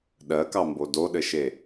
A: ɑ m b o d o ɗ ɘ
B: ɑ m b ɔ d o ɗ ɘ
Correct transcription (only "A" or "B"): A